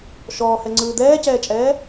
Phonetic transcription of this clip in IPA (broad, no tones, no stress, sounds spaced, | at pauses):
ʃ ɔː h ɛ ŋ͡ǀ ɯː d̪ ɛː c ɛː t͡ʃʼ ɛː